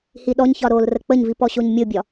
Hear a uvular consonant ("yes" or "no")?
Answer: no